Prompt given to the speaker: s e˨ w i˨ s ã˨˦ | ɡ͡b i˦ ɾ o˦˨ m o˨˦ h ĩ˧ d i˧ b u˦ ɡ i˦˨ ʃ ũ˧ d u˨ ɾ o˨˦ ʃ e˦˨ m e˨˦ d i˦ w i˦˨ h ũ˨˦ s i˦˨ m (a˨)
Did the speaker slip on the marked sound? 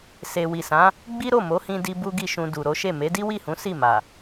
no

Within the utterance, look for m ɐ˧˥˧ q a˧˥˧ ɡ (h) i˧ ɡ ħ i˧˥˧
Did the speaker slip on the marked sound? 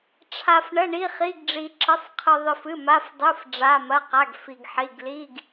yes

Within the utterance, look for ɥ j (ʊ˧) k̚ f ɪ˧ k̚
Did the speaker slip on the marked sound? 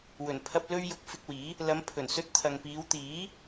no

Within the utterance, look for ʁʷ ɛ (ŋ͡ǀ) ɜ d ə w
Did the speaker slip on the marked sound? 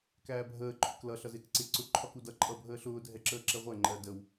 yes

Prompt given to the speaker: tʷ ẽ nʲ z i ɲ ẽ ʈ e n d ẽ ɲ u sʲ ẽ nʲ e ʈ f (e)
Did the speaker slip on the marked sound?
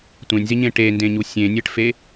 no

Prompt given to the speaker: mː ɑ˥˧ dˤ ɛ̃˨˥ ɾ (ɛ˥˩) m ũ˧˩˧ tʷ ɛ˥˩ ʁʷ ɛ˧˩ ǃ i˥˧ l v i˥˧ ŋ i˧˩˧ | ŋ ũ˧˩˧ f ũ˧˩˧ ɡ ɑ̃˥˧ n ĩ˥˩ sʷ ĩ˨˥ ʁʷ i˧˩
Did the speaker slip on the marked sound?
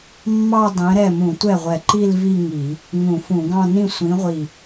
no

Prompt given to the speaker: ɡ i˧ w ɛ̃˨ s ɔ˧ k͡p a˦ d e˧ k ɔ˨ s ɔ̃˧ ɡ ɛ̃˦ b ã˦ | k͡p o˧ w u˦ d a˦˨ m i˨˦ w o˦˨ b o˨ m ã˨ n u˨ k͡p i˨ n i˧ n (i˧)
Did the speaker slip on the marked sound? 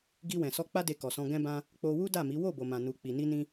yes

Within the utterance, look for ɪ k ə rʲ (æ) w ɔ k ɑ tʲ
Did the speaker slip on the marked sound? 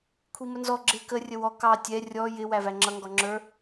yes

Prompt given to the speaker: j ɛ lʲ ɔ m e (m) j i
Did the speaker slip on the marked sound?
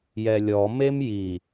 no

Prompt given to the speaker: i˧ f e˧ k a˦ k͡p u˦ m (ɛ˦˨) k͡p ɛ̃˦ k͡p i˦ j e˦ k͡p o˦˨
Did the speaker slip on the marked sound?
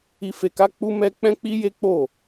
yes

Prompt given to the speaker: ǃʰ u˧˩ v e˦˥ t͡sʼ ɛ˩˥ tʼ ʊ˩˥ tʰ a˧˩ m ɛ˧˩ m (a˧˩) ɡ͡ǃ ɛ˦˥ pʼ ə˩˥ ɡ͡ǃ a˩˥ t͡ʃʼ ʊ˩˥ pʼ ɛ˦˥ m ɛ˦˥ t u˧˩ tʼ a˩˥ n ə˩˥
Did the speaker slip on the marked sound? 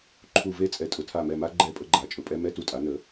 yes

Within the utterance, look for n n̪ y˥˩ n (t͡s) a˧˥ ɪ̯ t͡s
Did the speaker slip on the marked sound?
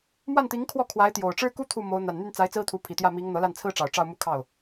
no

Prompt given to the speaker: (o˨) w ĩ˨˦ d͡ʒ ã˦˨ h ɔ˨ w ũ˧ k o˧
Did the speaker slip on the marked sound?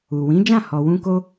yes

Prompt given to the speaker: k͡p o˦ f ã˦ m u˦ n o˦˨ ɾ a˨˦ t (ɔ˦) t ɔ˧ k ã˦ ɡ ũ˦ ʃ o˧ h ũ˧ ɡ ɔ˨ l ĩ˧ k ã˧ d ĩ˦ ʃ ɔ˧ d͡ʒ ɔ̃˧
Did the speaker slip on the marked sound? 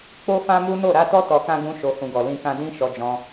no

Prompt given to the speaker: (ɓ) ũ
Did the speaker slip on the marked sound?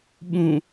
no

